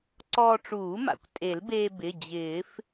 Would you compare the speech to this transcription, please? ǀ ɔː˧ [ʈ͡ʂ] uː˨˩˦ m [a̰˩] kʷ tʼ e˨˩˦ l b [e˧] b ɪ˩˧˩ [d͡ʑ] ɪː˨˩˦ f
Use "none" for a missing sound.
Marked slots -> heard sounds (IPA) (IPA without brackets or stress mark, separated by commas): ʈ͡ʂ, a̰˩, eː˧, d͡ʑ